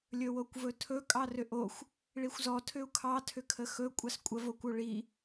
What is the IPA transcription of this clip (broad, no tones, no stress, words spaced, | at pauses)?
lʲɵwokʷvɵtʰɵ kʼɑrʏʔoxʷ | ɭixʷzɔ tʰʏu̯kʰɑ tʰʏkʰəxɵ kʷʼɑskʷʼə vokʷoɭi